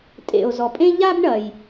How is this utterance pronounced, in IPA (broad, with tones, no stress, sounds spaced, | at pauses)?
tʼ ḛ˨ o̯ z ɔ˨ pʼ ẽ˥ ʎ a˥ b ɳ ɐ˨ j